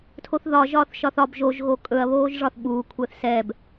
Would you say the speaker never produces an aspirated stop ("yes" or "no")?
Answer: no